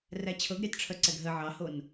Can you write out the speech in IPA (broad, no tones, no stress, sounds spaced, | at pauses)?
r æ t͡ɕʰ ɤ ɡ ɾʲ ɑ t ʈ͡ʂʰ œ ǀ ɛ ɡ ɦ ə ʕ ɑ h o n